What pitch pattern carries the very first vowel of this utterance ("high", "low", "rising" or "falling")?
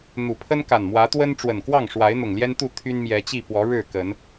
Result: low